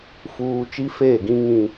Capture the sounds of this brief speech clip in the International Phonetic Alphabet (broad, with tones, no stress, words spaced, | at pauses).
fuː˨ t͡ʃi˦feː˦˨ɡĩ˦ ŋĩ˦